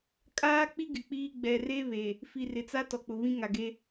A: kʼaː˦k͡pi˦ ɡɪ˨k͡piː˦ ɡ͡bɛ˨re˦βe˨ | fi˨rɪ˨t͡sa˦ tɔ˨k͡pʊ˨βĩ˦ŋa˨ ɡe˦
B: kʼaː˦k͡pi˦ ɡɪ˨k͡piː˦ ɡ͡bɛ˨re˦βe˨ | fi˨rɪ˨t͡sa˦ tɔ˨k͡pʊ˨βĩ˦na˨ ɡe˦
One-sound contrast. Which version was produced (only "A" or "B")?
A